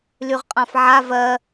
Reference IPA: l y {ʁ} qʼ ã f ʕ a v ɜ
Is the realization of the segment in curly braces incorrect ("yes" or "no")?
no